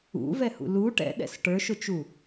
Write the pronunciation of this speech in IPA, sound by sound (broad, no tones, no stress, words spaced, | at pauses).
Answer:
ṵvɛhṵ lu ʈɛ̰ɗɛ̰s ʈə˞ʃʊt͡ʃu